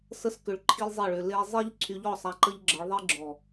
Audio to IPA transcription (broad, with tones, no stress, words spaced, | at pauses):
sə˦s kʏ˧ɭǃʰi˦lʲzˤe˦˨ɭʏ˧ le˧zˤe˦ʎ ǀʰy˧ʎɔ˦˨sˤa˧ ǃə˦ʎɡ͡ǁə˨˦ɭðˤi˦ ɡ͡ǁɔ˨